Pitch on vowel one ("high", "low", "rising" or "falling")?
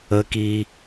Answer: high